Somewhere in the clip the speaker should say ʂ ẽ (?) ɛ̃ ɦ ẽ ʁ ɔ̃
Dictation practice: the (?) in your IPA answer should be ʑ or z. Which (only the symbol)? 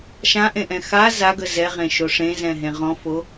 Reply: z